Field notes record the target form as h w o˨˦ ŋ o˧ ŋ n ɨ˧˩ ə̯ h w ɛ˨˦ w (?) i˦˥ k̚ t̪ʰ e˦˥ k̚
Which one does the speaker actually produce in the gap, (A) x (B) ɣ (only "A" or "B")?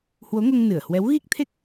B